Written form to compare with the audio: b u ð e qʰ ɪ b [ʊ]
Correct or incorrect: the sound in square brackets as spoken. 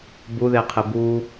incorrect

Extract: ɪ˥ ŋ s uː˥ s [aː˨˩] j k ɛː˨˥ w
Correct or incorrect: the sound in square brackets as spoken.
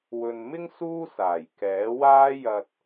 correct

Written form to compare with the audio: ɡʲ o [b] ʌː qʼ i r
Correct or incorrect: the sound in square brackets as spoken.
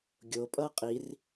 incorrect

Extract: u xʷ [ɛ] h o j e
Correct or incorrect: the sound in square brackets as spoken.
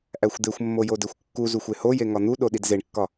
incorrect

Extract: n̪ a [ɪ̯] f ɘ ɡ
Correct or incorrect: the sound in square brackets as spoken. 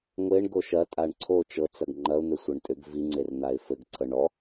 correct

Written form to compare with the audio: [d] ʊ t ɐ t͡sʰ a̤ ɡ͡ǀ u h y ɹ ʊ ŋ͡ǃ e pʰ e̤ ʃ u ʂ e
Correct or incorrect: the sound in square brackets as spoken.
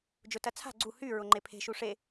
incorrect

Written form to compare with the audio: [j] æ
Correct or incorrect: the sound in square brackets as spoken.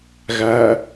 incorrect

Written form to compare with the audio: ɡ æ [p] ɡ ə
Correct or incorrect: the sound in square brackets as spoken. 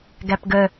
correct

